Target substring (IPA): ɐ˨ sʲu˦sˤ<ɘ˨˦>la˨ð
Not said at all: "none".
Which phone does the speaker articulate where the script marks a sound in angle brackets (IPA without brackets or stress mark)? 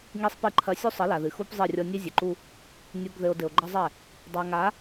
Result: ɘ˨˦